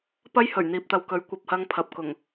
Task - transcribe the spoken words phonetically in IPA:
p ɐ˥ j h ɵ˨˩ ɥ n̪ iː˨ p̚ t̪ ɐ˨ w k ɵ˨˥ ɥ kʷ ɐ˨ p̚ h ɐ˧ ŋ pʰ ɐ˨ p̚ k ʊ˨˩ ŋ

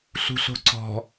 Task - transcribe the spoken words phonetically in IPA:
ɬ ṳ ɬ o̤ ǀ ɔ̤

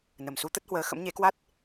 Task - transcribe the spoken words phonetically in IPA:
n ə˨˩ m s u˨˦ t̪ ə˦˥ t̚ h w əː˨˦ x ə̰˧˥ m ɲ e˨˦ k w a˦˥ t̚

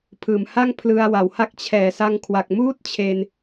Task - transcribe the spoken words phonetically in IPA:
pʰ ɯː˨˩ m h a˥˩ ŋ pʰ l ɯ˧ a̯ w a˩˦ w h a˥˩ k̚ t͡ɕʰ ɛː˨˩ s a˧ ŋ kʰ w a˨˩ k̚ m uː˥˩ t̚ t͡ɕʰ e˧ n

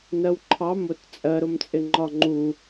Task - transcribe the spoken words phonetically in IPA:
n ɜ w ǃʰ ɑ m ʊ t t͡sʼ ɜ ɾ ʊ m t͡sʼ ɪ ŋ͡ǃ ɒ ŋ͡ǃ u

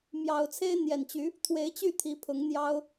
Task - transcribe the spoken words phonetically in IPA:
m j ɑ˨˩ ʊ̯ t͡sʰ e˥ ɪ̯ n̪ j ɛ˨˩ n t͡ɕ y˧˥ | t̪ʰ w e˧˥ ɪ̯ t͡ɕ y˥˩ t̪ʰ i˧˥ pʰ ʊ˧˥ ŋ n̪ j ɑ˥ ʊ̯

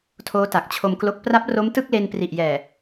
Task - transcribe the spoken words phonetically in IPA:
tʰ oː˦˥ t a˨˩ k̚ t͡ɕʰ o˧ m k l o˦˥ k̚ p r a˦˥ p̚ r o˦˥ m t ɯ˥˩ k̚ l e˧ n p r i˨˩ ʔ j ɛː˨˩

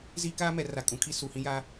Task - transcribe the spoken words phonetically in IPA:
z i˦ k aː˦ m ɛ˨ r a˨ kʼ ũ˨ kʰ i˦ s u˨ h ĩ˦ j a˦

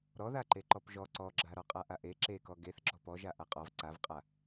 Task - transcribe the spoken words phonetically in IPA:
ɾ ɔ ð a ǃ e ǃ ɔ p ʒ ɔ ǀ ɔ ɡ͡ǁ a ɾ ɔ qʼ a ʔ a ʔ e ǁ e k ɔ ɡ e θ ɡ͡ǁ ɔ p ɔ ʒ a ʔ a qʼ ɔ v ǀ a v qʼ a

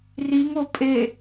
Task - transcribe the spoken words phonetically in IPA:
r i ŋ o pʼ e

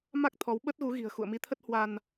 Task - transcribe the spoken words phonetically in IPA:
m a˦˥ k̚ t̪ʰ ɔ˨˦ w ɓ ə˦˥ t̚ ɣ u˨˦ ɣ i̤˨˩ ə̯ x ṵ˧˨ ə̯ m i˨˦ t̪ʰ ə˦˥ t̚ h w a˧ n

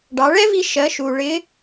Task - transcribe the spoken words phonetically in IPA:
ɖ ɑ˩˧ ɭ ɛ˥ v i˧ ʃ ɜ˩˧ ʃ u˩ ɭ ɪ˧˥

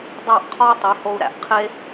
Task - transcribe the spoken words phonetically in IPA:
dˤ æ˥˨ ʔ qʰ ɒ˥ u̯ tˤ i˨˦ h o˥ u̯ ɾ æ̰˩ ʔ qʰ e˥

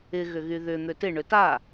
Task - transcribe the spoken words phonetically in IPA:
ɪ ɣ ʏ ɣ y ð ʏ n̪ ø t ɪ ɳ ʏ t a

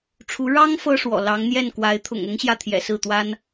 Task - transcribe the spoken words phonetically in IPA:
ʈ͡ʂʰ u˧˥ ɻ ɑ˥ ŋ f ɤ˥ ʂ w ɔ̰˨˩ l ɑ˧˥ ŋ n̪ j ɛ˥˩ n k w a˧˥ ɪ̯ t̪ʰ ʊ̰˨˩ ŋ ʊ˥ ŋ ɕ j ä˥˩ t̪ʰ j ɛ̰˨˩ s ɹ̩˥˩ t̪ w a˥ n

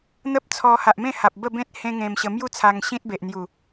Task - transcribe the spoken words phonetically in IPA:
n̪ ə˦ p̚ t͡sʰ ɔ˧ h a˨ ʔ m ẽ˥˧ h a˨ p̚ b ə˥˧ b ẽ˦ t̚ h ẽ˦ ŋ ẽ˧ m ɕ ə˧ m j u˦ t͡sʰ a˧ ŋ ɕ ĩ˦ t̚ b e˨ ʔ n̪ j u˨˩

